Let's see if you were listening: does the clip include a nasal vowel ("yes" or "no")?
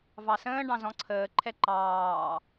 yes